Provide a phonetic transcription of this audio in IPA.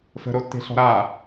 fə̤ɾotːe̤ɬɔ̤ ɾa

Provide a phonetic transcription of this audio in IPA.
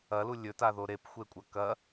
ɐlu lʲɵtaðo ɾepxʷekʷʼɐ kɐ

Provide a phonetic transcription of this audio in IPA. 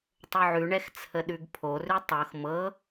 tˤoʕʉɳɛx t͡sʰəɗʉɡpʰorʉ tˤɤx mɤ

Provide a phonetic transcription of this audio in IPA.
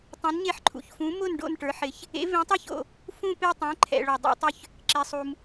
tˤũ˨˥nɲe˦ħ ǃʰṵ˨çfũ˨˥mʊ˥˨n ɖo̰˥˨nʈə˞˨˥ħɪ˨˥ç | ḛ˨˥vẽ˨˥tˤə˞˥˨ço̰˨ | fũ˥˨pe˥˨tˤɛ̃˨˥ ǃʰɛ̰˨ ɭo˨dˤo̰˨˥ tˤʏ˥˨ç | ǁe˨sˤu˨m

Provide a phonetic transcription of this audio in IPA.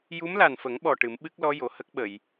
ju˧˥mla˨˩nfə˨˩˦ŋɓɔ˨˩ ʈɨ˨˩˦mɓɨ˦˥k̚lɔ˧˥ jo˨˩˨ hə˦˥k̚ɓə˨˩˨j

